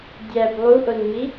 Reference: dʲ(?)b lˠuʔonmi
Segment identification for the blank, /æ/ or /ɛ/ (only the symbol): æ